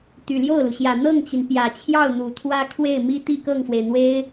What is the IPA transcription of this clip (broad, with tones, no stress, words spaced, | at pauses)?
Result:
t̪y˨˩ljo˥˩ʊ̯lu˩ɕjä˨˩ n̪ɤ˥˩ŋt͡ɕi˩n pjä˨˩t͡ɕʰjɑ˥˩ʊ̯ n̪u˨˩t̪ʰwä˥kʰwe˥˩ɪ̯ mi˥ t̪i˥˧kɤ˥˩ŋfwe˩ɪ̯n̪we˥ɪ̯